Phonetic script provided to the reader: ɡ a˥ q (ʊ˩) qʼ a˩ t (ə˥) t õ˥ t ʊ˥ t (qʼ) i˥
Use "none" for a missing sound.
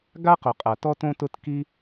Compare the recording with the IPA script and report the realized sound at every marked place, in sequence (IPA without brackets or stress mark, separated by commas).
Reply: ʊ˩, ɔ˥, k